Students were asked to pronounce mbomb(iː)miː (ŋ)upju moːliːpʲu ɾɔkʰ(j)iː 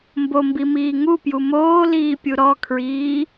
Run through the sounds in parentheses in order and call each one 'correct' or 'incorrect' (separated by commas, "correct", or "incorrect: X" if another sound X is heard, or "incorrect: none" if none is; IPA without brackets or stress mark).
incorrect: i, correct, incorrect: ɹ